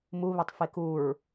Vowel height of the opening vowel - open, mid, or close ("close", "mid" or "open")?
close